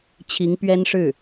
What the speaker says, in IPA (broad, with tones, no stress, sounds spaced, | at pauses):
t͡ɕʰ i˧˥ ŋ p ɥ ɛ˥ n ʂ ɻ̩˥˩